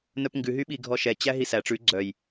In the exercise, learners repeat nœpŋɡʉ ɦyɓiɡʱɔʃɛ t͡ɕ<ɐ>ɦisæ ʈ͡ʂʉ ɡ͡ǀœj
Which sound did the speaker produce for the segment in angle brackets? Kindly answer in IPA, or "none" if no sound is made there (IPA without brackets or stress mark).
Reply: æ